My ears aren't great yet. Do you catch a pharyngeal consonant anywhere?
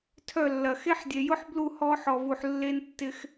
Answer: yes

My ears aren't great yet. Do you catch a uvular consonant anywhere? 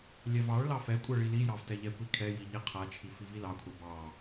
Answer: yes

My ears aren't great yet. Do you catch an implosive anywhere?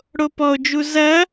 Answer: no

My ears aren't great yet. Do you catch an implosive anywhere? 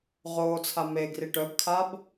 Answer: no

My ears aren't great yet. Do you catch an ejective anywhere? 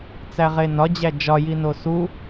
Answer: no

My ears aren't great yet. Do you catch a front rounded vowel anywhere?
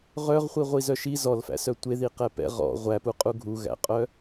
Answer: yes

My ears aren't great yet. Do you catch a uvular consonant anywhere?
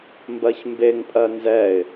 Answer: no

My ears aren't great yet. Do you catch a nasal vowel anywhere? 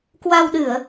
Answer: no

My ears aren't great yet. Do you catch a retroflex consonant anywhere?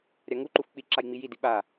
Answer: no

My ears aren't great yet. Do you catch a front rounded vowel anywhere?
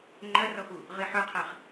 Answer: yes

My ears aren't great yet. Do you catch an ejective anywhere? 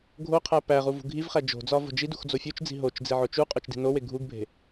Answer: yes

